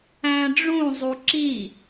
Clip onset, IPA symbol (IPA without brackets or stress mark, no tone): æ̃